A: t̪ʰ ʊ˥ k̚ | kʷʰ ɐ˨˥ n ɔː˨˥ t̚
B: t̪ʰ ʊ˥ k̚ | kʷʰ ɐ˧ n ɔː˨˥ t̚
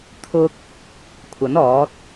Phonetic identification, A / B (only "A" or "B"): A